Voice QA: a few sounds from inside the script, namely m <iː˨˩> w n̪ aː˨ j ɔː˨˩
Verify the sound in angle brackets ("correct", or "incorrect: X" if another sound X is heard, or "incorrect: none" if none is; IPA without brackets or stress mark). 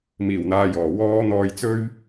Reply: correct